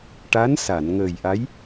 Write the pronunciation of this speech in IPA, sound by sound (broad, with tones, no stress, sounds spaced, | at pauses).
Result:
ʈ a˧˥ n s a˨˩˨ n ŋ əː˨˩ j ʔ a˧˥ j